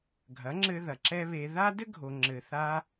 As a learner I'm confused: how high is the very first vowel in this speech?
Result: low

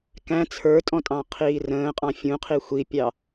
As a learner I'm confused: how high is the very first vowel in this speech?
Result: low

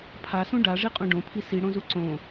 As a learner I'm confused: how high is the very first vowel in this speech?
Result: low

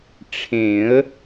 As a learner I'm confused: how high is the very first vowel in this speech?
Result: mid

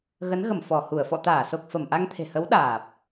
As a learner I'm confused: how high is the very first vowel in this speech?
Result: mid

